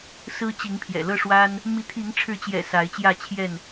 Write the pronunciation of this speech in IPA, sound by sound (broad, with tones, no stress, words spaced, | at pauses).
sɹ̩˦t͡ɕi˨˦ŋpʰjɛ̰˨˩ lɤ˥˨ʂwa˦n | mi˨˦t̪ʰi˨˦ŋʈ͡ʂʰɻ̩˨˦t͡ɕjɛ̰˨˩ sa˨˦ɪ̯t͡ɕjä˥˨t͡ɕʰjɛ˥˨n